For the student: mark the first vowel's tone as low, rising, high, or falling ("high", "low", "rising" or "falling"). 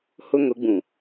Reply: high